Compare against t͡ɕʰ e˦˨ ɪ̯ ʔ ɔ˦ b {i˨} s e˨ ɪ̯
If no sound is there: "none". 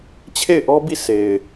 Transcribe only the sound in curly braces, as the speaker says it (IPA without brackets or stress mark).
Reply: i˦˨